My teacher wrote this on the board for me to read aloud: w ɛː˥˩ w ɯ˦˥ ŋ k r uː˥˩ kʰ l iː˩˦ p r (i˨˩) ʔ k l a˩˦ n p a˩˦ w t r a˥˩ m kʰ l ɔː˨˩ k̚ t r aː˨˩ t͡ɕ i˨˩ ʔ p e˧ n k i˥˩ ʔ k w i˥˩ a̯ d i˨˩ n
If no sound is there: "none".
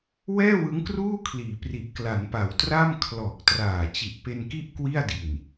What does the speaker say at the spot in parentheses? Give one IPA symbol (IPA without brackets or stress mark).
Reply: i˨˩